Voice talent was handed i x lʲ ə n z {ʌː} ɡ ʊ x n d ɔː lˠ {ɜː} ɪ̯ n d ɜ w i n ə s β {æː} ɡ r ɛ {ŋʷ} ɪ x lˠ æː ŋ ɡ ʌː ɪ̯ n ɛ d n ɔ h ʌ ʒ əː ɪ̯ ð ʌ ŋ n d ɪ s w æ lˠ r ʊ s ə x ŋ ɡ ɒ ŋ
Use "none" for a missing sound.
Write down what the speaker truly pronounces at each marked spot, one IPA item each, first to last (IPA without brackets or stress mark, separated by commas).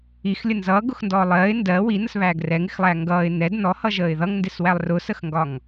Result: ʌː, ɜː, æː, ŋ